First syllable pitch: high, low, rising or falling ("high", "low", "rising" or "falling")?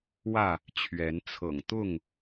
falling